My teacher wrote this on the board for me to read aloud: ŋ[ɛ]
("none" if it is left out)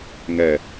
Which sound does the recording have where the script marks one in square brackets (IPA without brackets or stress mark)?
ɛ